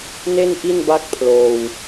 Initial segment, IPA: n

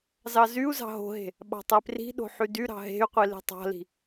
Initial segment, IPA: z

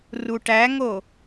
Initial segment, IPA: r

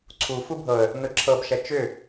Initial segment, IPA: ǀʰ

